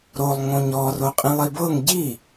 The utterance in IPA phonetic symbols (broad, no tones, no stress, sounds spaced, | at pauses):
ɾ o lˠ ŋ õ ɲ ɔ r o qʼ ĩ lˠ i b ɤ ŋ ɟ i